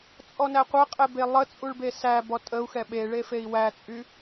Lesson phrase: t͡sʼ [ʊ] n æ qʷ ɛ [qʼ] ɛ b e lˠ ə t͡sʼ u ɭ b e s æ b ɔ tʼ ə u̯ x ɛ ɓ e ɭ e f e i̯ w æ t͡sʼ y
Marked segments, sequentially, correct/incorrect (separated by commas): incorrect, correct